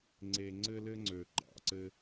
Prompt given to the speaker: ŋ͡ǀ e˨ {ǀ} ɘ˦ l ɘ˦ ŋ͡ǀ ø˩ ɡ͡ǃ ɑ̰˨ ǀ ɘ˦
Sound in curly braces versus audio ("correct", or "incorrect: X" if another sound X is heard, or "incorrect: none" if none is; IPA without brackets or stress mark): incorrect: ŋ͡ǀ